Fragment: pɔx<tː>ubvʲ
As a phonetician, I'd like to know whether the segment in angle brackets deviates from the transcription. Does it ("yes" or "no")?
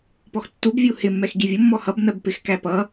no